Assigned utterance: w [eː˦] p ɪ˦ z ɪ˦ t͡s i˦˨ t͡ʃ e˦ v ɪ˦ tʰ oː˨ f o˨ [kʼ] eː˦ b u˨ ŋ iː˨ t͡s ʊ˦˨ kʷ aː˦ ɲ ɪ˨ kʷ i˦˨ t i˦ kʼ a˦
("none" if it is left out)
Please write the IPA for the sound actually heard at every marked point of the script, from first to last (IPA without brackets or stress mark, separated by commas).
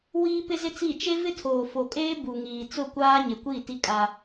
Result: iː˦, kʼ